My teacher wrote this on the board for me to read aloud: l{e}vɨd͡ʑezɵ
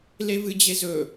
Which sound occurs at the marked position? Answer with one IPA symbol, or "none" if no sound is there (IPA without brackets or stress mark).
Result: e